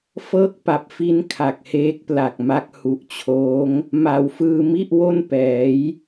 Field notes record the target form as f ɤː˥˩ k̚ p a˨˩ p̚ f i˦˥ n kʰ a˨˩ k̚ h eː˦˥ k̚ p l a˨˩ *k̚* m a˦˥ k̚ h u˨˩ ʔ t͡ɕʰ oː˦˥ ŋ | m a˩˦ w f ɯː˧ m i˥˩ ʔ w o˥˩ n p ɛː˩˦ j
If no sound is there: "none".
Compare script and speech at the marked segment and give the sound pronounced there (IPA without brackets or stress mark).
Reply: k̚